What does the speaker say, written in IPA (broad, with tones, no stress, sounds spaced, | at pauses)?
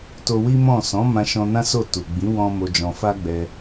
t o˧ w i˦ m ɔ̃˦˨ s ɔ̃˨˦ m ã˧ ʃ ɔ̃˧ n ã˦ s o˦˨ t u˨ ɡ͡b ĩ˨˦ w ɔ̃˦ m o˧ d͡ʒ ɔ̃˧ f a˦ ɡ͡b ɛ˧